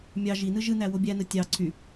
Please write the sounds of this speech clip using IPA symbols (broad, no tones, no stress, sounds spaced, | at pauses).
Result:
mʲ ɑ ʒ i n ɯ ʒ ɯ n æ w o bʲ æ n ɯ tʲ ɑ ǀʰ y